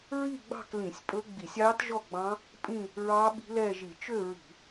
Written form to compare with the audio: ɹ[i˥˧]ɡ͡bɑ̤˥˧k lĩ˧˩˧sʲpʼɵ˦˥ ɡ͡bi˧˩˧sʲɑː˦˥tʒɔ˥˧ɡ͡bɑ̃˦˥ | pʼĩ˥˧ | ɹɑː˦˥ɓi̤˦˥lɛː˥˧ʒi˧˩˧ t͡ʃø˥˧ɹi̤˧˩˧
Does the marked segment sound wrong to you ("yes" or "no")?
no